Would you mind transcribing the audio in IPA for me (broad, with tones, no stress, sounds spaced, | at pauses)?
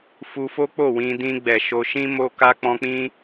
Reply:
f u˧ f o˦ k͡p o˦˨ w ĩ˧ d ĩ˧ ɡ͡b ɛ˨ ʃ o˧ ʃ ĩ˦ m o˦ k a˦ k͡p ɔ̃˦ k͡p ĩ˦